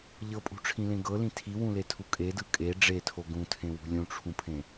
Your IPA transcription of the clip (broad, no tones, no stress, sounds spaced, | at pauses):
ʎ ɤ pʼ ṳ ʈ͡ʂʰ ĩ l ẽ ɡ ɤ l ĩ tʰ i w ũ l e tʰ u kʼ e d ɯ kʼ e ɖ͡ʐ e tʰ o ɡ ũ tʰ ẽ w ṳ lʲ ũ ʈ͡ʂʰ ũ pʰ ẽ